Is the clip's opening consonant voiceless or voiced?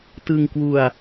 voiceless